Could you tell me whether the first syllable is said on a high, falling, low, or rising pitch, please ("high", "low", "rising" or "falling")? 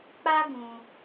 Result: high